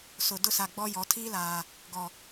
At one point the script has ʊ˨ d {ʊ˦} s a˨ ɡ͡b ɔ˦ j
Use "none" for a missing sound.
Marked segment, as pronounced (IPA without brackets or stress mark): ʊ˦